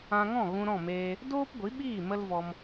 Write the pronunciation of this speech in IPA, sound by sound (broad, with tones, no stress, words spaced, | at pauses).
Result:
ã˧ŋɔ̃˦˨ ɣũ˧ɾɔ̃˦˨meː˧ | doː˦pɡʷi˨˦ɓiː˦˨ mə˦lvɔ˧m